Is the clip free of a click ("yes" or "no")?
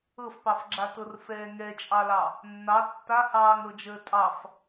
no